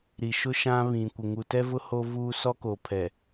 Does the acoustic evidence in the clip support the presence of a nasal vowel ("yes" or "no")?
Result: yes